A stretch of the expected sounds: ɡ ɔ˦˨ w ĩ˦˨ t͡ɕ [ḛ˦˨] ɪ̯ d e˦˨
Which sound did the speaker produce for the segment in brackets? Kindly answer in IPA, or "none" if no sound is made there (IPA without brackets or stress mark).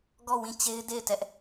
e˦